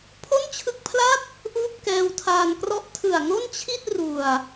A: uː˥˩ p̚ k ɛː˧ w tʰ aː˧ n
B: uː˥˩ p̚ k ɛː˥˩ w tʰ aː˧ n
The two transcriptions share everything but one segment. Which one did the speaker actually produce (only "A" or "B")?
A